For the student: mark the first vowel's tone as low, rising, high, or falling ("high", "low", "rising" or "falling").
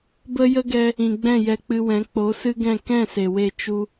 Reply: high